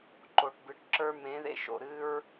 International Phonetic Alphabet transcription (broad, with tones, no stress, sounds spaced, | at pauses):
ǃ o˨ ʈ b ɨ˨ ʈ ǁ ə˞˦ m ẽ˨˦ ð ḛ˧ ʃ o̰˨ ɾ ɨ˦ ɹ